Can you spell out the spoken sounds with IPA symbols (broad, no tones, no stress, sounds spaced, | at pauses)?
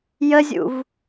j ə zʲ ṵ v